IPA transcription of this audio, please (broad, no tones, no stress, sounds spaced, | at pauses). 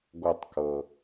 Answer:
ɡʷ ə tˤ k ɤ